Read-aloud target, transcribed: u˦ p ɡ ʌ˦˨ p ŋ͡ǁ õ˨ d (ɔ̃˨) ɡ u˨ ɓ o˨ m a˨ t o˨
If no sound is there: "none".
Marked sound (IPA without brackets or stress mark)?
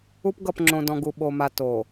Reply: ɔ̃˨